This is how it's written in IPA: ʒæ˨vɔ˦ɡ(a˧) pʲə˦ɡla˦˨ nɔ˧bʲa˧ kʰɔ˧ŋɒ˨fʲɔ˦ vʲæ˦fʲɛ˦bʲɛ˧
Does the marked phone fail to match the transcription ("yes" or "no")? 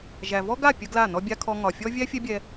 yes